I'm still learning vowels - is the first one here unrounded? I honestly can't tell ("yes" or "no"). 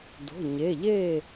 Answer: no